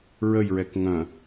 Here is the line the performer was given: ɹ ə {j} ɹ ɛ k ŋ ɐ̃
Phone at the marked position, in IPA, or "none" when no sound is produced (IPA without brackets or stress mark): j